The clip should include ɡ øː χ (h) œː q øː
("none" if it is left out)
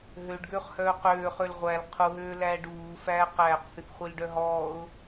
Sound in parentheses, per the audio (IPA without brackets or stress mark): h